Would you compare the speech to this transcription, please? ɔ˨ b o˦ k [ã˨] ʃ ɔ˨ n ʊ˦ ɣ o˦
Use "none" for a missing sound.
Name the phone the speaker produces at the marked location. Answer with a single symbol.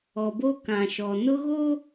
ã˨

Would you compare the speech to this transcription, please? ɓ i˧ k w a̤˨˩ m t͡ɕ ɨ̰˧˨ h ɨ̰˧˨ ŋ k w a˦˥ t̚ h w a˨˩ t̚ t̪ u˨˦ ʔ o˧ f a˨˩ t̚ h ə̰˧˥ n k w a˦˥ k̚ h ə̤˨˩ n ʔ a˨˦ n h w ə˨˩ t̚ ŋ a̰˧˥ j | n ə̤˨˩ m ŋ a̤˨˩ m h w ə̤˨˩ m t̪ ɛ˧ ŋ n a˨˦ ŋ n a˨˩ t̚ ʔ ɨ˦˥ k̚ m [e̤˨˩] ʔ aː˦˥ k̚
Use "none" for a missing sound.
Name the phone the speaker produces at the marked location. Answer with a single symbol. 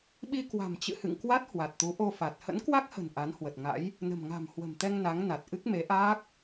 e˨˦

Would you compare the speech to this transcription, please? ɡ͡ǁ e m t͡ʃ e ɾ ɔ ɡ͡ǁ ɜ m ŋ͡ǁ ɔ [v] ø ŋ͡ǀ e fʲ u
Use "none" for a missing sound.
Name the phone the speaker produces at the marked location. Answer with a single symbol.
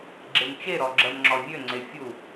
vʲ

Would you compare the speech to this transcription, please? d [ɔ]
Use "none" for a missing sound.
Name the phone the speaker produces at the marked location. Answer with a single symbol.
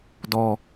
ɔ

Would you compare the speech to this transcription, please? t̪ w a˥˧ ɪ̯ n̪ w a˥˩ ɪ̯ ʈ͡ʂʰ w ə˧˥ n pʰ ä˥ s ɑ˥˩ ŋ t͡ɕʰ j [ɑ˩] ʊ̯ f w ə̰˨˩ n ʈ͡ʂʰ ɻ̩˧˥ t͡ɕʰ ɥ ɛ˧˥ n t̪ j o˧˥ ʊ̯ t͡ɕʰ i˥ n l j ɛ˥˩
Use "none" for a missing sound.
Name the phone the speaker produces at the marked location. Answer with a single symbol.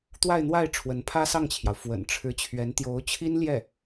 ɑ˩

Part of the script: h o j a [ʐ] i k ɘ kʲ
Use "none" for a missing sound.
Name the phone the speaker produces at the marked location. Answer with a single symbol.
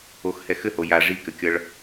ʐ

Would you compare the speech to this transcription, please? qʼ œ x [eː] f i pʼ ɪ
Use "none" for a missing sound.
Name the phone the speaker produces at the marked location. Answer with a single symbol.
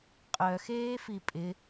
eː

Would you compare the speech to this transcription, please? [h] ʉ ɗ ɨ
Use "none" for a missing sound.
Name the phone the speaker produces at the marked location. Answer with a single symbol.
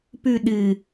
p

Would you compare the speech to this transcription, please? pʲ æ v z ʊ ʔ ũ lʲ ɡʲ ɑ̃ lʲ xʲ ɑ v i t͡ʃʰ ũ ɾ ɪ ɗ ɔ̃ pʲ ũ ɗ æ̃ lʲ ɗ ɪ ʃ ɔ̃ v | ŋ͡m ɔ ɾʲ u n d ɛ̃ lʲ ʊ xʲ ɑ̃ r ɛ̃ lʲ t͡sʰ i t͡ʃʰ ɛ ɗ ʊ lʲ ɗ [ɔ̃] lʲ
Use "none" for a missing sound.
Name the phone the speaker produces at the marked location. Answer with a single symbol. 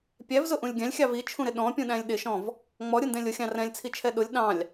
ɑ̃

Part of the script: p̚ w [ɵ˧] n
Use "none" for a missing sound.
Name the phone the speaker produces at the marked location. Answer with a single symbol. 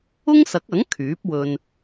ɵ˧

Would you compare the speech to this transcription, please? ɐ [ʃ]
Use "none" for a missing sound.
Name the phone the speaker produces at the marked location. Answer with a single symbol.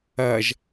ʒ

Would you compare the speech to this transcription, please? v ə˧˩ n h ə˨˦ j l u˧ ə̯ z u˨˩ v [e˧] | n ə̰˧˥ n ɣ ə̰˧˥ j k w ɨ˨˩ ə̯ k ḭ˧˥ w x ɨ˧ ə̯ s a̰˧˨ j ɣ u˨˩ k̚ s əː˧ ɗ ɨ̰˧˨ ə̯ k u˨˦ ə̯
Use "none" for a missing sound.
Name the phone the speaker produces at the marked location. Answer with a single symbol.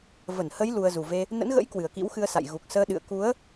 e˧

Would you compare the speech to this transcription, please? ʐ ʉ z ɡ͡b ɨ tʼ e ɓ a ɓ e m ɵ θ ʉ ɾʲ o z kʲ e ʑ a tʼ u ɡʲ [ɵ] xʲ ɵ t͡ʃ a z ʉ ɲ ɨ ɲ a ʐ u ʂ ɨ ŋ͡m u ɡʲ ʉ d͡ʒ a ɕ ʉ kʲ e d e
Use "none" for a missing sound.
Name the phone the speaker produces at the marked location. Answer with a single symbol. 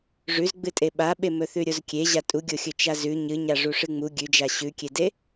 o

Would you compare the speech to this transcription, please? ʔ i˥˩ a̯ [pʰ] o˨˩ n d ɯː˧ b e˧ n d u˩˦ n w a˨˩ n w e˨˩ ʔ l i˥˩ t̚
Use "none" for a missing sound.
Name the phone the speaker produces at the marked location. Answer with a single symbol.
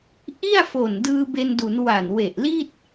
f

